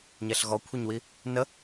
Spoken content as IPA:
ɲ ɛ ɬ ɣ ɔ kʷʰ e ɲ w i | n ə

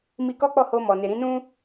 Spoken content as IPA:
m i˧ k ɔ˦ k͡p ɔ˦˨ h o˧ m ɔ˨ n e˨ ɾ ĩ˨˦ n ũ˦

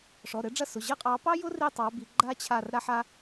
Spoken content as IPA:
ʂ ɔ˩˧˩ ɾ ɘ˨˦ ɖ͡ʐ ɐ˦˨ s ʊ˩˧˩ ʑ ə˥ qʼ ɑ˨˦ p ɑ˥ j ʊ˥ r i˦˨ tˤ ɑ˨˦ b i˨˦ ɡ͡ǃ a˥ t͡ɕʰ a˦˨ r ɾ a˥ ħ a˥

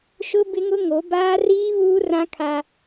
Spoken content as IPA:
ʃ ʊ˦ b ɪ˦ ŋ ʊ˦ ŋ o˨˦ b aː˦ r iː˦ β uː˦ r ã˦ kʰ a˦

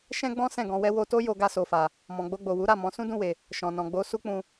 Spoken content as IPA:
ʃ ɛ̃˦ ɡ͡b ɔ̃˦ s ɛ̃˦˨ ɡ ɔ̃˧ w ɛ˦ w o˧ t o˦ j o˧ ɡ a˧ s o˨ f a˨ | m ɔ̃˨ ɡ͡b o˧ ɡ͡b o˨ w u˨˦ ɾ a˦˨ m ɔ̃˨˦ s ũ˦ d ũ˦˨ w e˨ | ʃ ɔ̃˨ n ɔ̃˨ ɡ͡b o˨˦ s u˦ k͡p ũ˧

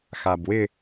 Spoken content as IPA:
x a b w ɪ

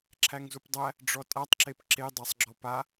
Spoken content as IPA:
ǁʰ æ ŋ z u p dˤ æ | ɖ͡ʐ ɔ tʼ a tˤ ǁ e p ǁ e dˤ æ sˤ ɡ͡ǁ ɔ p a

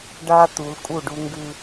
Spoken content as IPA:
ɖ a˦ t̪ u˨˦ l kʼ u˦˨ ɖ u˦ ŋ ɡ ʉ˦

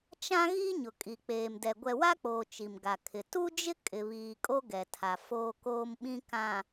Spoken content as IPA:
t͡ʃ ã˦ ɣ i˦ ɲ ʊ˨ kʼ i˨ k͡p eː˨ m d ɛ˨ ɡʷ ɛ˨ w a˦ k͡p oː˨ t͡ʃ i˨ m ɡ a˨ kʰ ɪ˨ t u˦ d͡ʒ ɪ˦ kʼ ɪ˨ β iː˨ kʼ o˦ ɡ ɛ˨ tʰ a˨ f oː˦ k oː˦ m ɓ ĩ˦ k ã˨

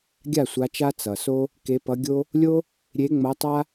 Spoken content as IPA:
ɡʲ a˥˩ sʷ a˨˦ t͡ʃ a˦ t͡s ʌ˩ s o˦ | k e˨˦ p ʌ˨˦ ɡʲ o˦ | lʲ o˦ | ɾʲ e˨˦ ŋ͡m ʌ˨˦ tˤ a˦

